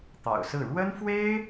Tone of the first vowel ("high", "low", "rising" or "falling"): low